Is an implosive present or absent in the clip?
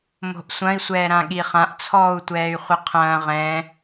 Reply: present